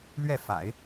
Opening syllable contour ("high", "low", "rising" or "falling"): falling